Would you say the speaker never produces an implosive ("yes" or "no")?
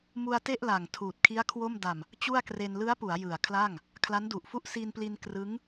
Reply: yes